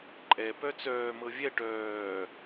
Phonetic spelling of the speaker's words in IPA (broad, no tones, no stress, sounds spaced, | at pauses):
ǃʼ ɛ p œ t͡s œː m ɤ vʲ ɛ ʈ œː